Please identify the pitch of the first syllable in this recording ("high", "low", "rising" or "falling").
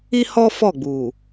high